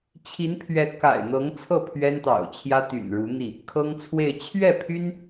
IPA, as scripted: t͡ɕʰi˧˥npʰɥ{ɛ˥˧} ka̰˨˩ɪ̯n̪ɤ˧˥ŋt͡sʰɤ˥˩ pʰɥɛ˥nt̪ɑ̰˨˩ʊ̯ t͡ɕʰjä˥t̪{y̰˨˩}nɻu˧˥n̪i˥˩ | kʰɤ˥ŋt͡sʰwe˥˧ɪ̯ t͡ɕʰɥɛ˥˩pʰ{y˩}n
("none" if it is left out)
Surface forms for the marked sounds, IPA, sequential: ɛ˧˥, y̰˨˩, y˥

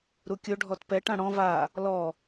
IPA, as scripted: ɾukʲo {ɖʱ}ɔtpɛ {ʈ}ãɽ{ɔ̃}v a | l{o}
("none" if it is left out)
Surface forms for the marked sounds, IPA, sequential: ɖʱ, ʈ, ɔ̃, ɔ

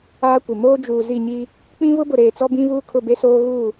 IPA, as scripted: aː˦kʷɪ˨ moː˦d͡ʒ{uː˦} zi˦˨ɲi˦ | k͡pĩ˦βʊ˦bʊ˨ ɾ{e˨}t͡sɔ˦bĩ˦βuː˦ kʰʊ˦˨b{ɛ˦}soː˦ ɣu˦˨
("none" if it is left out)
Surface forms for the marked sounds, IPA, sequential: uː˨, eː˨, e˦

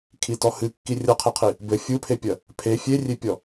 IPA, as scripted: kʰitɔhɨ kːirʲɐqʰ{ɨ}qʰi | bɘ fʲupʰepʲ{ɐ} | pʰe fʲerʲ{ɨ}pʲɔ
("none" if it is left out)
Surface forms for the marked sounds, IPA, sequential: e, ɐ, e

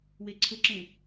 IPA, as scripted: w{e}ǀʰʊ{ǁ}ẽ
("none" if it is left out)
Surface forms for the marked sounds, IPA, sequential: e, ǁ

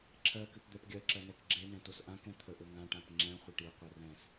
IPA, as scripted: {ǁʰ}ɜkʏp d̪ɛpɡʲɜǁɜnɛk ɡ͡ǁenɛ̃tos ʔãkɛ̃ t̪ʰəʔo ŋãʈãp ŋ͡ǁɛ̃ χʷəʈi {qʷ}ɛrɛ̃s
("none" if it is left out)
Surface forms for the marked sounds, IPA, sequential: ǁʰ, qʷ

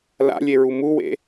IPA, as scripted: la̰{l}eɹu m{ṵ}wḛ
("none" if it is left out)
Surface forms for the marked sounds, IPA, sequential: lʲ, u

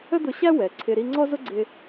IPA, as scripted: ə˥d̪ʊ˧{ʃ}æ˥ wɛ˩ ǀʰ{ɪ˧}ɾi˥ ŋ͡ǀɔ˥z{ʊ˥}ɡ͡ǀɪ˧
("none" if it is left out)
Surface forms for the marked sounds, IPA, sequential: ɕ, ɪ˧, ʊ˥

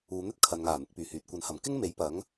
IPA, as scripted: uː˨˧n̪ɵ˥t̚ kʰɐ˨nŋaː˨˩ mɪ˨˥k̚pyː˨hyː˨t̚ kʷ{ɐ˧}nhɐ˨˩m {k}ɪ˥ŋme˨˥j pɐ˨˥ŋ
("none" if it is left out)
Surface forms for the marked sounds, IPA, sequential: ɐ˨˥, k

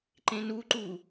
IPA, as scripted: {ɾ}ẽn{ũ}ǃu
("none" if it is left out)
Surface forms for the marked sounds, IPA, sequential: ǃ, u

